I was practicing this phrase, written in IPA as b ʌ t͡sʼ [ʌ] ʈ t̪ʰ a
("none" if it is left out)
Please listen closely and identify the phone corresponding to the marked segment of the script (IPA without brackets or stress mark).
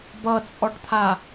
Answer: ɔ